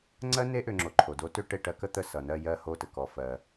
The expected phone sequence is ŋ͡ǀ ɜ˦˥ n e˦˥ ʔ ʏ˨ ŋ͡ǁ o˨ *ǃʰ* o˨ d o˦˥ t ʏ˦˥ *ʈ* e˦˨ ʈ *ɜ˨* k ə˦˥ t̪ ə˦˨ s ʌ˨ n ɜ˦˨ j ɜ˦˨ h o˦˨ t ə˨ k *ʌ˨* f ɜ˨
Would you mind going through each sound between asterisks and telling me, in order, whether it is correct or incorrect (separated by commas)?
correct, correct, incorrect, incorrect